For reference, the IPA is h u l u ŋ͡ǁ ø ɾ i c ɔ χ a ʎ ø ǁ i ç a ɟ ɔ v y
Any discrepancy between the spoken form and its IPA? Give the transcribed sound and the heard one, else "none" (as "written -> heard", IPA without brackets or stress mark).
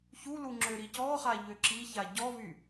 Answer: h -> ç